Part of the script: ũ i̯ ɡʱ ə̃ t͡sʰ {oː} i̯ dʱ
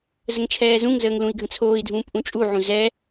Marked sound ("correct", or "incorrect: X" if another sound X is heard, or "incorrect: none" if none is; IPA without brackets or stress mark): correct